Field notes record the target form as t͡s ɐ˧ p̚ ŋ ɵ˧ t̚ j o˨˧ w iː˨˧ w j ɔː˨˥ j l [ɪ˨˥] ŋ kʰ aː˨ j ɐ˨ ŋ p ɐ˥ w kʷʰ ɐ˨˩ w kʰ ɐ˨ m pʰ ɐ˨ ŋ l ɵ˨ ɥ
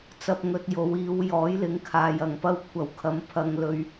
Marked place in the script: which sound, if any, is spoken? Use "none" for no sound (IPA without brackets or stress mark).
ɪ˨˥